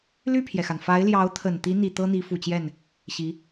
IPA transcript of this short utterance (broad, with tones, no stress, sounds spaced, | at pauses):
l y˥˩ pʰ j ɛ˩ x a˩ n f a˧˥ ɪ̯ l j ɑ˧˥ ʊ̯ t̪ʰ ə˨˩ n t̪ i˧˥ n̪ i˨˩ t̪ ɤ˥ n̪ i˧˥ f u˨˩ t͡ɕ j ɛ˥˩ n | ɕ i˧˥